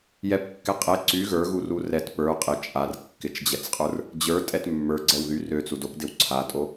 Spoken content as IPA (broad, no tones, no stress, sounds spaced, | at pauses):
j ɛ p kː ɛ qʼ ɛ ǀ y ɣ ə˞ ɣ u r u r ɛ t p ə˞ qʼ ɪ t͡ʃʼ a r kː ɪ t͡ʃ d͡ʑ ɛ t͡s qʼ ə˞ r | d͡ʑ ə˞ tʼ ɛ t mː ə˞ ɡ͡ǀ ɛ w ð y r ø t͡s u d o p d ɪ w ǀʰ a tʼ o